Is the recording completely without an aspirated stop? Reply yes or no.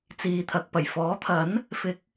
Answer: no